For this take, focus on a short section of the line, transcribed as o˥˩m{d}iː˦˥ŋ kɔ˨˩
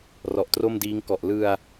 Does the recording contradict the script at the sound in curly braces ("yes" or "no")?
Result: no